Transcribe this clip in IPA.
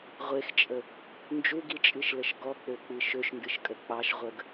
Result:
ʁʷ e x t͡ʃʼ ə | n d͡ʒ u ɡ i t͡ʃʼ ɨ ʃ l ə ʃ ɡ ɔ k͡p ø k͡p ɨ ʃ ø ʃ n d ɨ ʃ kʼ ə k͡p ɑ ʃ ʁʷ ə ɡ

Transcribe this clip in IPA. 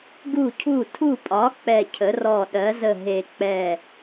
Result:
ɡ u˧˩ cʰ u˧˩ tʰ u˧˩ pʼ ɒ˩˥ k͡p ɛ˧˩ cʰ ə˩˥ r ɔ˧˩ ɗ ɜ˩˥ z ə˧˩ ɦ e˧˩ k͡p ɛ˧˩

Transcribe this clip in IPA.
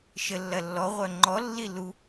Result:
ʃ ə lː ɐ lː ɔ ʁʷ œ ŋ͡ǃ ɔ lː i l u

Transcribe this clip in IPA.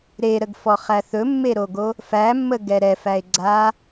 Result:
ɾ e ɾ ə ɡ f ɔ χ æ θ ɵ mː e ɾ o ɡ o | f æ mː ə ɡ ɛ ɾ ɛ f æ e̯ ɡ͡ǀ a

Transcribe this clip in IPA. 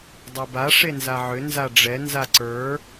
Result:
dˤ e b a ʂ e n z a ʕ ʏ n z a ɖ͡ʐ ɛ n z a ǀ ə˞

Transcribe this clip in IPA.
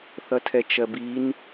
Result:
θ ʌ tʰ ɛ t͡ʃ ɜ b i n

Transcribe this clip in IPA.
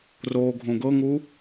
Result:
r oː ɡʱ õ ɡ ɤ ŋ u

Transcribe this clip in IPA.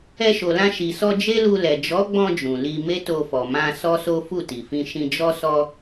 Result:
ɛ˧ ʃ o˨ l ã˧ ʃ i˨ s ɔ˧ d͡ʒ e˦ l u˧ l ɛ˨ d͡ʒ ɔ˨˦ ɡ͡b ɔ̃˧ d͡ʒ ũ˨ l i˧ m e˦ t o˧ f ɔ˨ m ã˧ s ɔ˦ s o˦ f u˦˨ t i˨ f ĩ˧ ʃ ĩ˧ d͡ʒ ɔ˦ s ɔ˦

